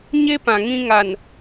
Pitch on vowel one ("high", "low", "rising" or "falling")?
high